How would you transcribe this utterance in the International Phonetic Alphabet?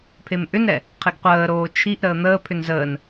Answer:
pʰ e m ʔ ʏ n ɾ ɛ | qʰ i ɡ qʷ əː ɾ oː t͡ʃʰ i ʔ ɾ əː n̪ əː pʰ ʏ n z əː n

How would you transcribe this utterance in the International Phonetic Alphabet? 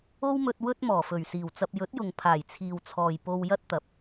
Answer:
o˥ w m ɵ˧ t̚ w ɵ˥ t̚ m ɔː˨˩ f ɵ˨˩ ɥ s iː˨˩ w t͡s ɐ˧ p̚ j ɵ˨˥ t̚ j ʊ˨ ŋ pʰ aː˨˩ j t͡sʰ iː˨ w t͡sʰ ɔː˨ j p o˧ w j ɐ˥ t̚ t̪ ɐ˨˥ p̚

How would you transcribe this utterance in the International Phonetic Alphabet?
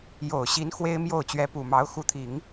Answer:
j o˨˩ ʊ̯ ɕ i˧˥ n x w e˥ ɪ̯ m j o˥˩ ʊ̯ t͡ɕ ɥ ɛ˧˥ p u˨˩ m ɑ˧˥ ʊ̯ x u˧˥ t̪ʰ i˨˩˦ ŋ

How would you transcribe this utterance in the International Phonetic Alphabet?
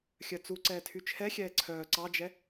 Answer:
xʲ œ t͡s u ǀ ɛː tʰ y t͡ʃʰ ɛ xʲ ɛː ǀʰ œː ǀ ɑ d͡ʒ ɛ

